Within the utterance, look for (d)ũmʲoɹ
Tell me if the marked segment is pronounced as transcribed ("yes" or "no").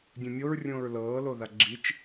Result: no